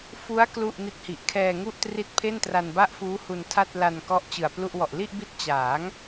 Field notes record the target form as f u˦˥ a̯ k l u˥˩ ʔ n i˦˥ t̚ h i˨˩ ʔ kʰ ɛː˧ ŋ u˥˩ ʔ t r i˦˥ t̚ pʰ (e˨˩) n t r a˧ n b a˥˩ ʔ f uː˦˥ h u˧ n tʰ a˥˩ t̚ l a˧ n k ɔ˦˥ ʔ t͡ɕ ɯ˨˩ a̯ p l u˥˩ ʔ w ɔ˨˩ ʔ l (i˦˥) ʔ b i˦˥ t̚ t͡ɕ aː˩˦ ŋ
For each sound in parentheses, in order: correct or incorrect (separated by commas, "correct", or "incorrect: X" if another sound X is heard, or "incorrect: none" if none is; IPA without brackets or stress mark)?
incorrect: e˥˩, incorrect: i˥˩